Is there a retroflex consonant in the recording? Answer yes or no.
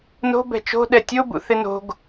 no